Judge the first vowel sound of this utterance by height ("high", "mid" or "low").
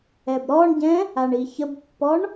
mid